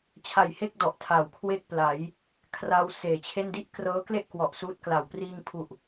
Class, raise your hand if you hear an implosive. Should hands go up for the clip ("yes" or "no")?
no